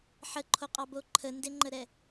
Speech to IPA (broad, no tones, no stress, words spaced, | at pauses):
ħəǃʰoqʼɑbo ǃʰəndeŋ͡ǃəɾɛ